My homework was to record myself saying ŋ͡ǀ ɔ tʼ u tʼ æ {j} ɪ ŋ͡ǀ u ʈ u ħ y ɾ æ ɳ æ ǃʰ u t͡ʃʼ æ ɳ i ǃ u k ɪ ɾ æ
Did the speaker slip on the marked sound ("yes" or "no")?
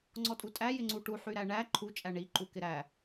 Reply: no